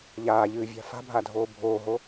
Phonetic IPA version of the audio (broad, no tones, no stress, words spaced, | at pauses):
ʎaːʎɨːvʲa̤ fa̤bʱadʱoː bʱoːɦo